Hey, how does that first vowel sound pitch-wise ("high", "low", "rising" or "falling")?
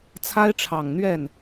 high